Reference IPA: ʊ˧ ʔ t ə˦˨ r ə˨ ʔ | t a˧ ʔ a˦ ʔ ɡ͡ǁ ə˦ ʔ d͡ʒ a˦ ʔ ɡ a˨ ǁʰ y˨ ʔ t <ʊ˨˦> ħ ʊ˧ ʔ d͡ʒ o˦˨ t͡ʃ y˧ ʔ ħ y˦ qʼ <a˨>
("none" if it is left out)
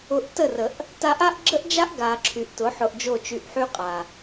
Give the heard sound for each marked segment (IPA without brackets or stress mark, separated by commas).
ʊ˨˦, a˨